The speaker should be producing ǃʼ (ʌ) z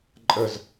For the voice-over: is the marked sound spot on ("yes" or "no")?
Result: no